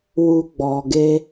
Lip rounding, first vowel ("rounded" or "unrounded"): rounded